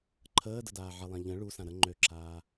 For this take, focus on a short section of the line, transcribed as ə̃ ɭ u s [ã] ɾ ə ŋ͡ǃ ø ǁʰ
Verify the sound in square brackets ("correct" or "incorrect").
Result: correct